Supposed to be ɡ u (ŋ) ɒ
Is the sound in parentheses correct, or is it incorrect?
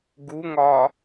correct